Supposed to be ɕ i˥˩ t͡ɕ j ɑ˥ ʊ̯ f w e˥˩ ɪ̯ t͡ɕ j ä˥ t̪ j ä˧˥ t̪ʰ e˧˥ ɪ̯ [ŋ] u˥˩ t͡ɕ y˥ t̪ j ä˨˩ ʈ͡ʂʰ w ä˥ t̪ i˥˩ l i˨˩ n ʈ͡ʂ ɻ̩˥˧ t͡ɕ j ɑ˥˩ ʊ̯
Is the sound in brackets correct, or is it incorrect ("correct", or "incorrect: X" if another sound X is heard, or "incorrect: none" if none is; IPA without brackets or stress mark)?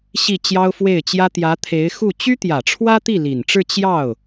incorrect: x